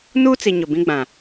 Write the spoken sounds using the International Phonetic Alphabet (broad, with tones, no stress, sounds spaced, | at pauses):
n uː˦ t͡s i˨ ɲ ʊ˨ b ĩ˦ ɡ͡b ã˨